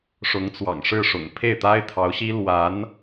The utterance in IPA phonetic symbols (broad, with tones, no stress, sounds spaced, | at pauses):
ʂ ʊ˧˥ ŋ t͡s w ɑ̰˨˩ ŋ ʂ ɻ̩˥˩ ʂ ʊ̰˨˩ ŋ pʰ e˥˩ ɪ̯ t̪ a˥ ɪ̯ t̪ʰ ɑ˧˥ ʊ̯ ɕ i˥ l w a˧˥ n